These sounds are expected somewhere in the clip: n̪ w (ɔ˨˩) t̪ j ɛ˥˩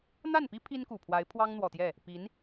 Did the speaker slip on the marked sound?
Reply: no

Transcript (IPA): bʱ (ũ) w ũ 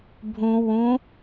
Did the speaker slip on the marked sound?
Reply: no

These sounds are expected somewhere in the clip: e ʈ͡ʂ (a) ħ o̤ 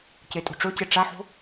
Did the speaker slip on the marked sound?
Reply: no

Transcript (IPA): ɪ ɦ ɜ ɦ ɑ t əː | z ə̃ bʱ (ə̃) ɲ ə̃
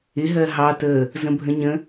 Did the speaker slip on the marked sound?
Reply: no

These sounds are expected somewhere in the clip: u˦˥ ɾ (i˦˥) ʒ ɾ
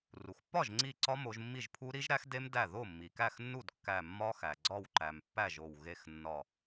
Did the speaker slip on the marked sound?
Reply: no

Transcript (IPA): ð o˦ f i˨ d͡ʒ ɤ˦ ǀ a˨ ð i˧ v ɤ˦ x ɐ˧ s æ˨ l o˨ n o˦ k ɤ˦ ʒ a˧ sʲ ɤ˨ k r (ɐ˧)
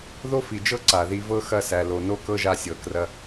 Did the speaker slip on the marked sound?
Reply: no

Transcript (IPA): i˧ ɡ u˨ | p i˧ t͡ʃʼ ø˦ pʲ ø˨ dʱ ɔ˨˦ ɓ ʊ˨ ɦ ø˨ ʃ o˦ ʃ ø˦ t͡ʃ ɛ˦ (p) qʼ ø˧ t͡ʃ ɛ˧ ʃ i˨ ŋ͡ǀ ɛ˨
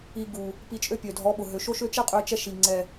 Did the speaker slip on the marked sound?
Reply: yes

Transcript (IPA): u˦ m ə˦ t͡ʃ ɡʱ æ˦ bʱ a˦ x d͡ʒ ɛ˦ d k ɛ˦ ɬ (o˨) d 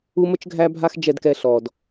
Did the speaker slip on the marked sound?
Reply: yes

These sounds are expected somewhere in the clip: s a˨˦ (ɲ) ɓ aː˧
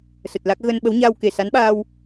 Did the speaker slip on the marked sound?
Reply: yes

